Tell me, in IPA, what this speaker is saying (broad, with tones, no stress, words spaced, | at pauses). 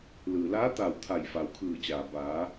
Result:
lɯː˩laː˧˥t̪aː˧˩w t̪ʰa˧˩jfa˩wkʰɯː˧˩t͡ɕaː˩ baː˩˧